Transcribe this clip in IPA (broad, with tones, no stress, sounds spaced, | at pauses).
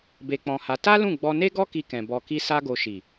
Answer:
b e˧ k͡p ɔ̃˧ h a˧ t a˦ l ũ˦˨ ɡ͡b ɔ˧ n e˦ ɡ ɔ˦ k i˧ k ɛ̃˨ b ɔ˨ k i˧ s a˧ ɡ o˨ ʃ i˨